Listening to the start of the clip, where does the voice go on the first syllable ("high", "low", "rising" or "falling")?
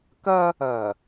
high